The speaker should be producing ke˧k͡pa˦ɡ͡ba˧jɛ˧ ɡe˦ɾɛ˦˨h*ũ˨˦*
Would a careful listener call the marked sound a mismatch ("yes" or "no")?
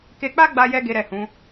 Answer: no